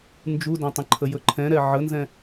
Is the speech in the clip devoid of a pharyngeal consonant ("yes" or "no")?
no